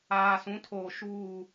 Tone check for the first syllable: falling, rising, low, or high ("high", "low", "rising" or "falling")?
low